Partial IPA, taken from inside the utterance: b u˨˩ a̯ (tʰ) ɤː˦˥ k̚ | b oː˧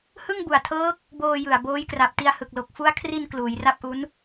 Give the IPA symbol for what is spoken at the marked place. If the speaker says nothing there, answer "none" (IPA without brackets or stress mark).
tʰ